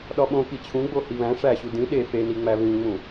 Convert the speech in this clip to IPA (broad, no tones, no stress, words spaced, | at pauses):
ɗɒɓõ kit͡ɕʰũɡ͡bo hiβæ̃ ʂæɕu dĩ ɗe feniŋ͡mæ βĩŋ͡mũ